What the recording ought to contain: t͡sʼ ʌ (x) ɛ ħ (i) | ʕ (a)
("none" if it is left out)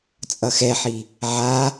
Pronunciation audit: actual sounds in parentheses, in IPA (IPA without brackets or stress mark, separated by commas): x, i, a